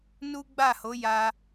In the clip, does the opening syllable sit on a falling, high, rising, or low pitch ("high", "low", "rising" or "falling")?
high